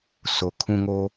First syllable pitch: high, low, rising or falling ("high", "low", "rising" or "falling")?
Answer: low